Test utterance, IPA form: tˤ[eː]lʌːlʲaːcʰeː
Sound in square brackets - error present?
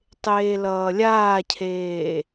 no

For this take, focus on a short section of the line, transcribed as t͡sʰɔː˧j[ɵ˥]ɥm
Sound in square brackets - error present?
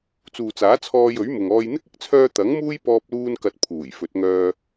yes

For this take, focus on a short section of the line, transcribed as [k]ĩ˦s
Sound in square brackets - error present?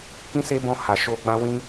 no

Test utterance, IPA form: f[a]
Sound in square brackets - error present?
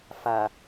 no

